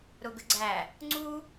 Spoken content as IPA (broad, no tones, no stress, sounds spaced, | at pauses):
ɾ ʊ ɡ ə ɡ͡ǀ æ | ŋ͡ǀ u